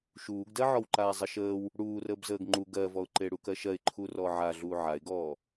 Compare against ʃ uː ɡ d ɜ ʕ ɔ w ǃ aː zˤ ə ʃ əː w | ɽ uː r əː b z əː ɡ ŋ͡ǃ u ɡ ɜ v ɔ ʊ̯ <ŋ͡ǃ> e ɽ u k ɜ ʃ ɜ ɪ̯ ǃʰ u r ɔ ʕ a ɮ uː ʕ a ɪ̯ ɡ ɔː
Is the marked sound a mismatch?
yes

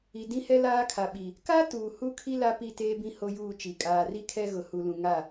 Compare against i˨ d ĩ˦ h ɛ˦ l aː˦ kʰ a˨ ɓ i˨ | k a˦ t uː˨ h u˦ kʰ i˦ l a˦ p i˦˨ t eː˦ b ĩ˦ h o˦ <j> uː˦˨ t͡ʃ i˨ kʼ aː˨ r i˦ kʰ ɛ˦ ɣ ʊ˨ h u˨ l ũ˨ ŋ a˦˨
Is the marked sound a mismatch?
no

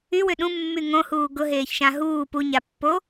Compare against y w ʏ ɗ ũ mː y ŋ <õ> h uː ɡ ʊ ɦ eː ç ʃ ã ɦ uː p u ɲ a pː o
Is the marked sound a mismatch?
no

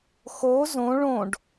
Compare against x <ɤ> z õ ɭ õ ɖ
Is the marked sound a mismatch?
yes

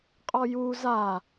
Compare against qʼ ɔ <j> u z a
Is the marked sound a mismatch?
no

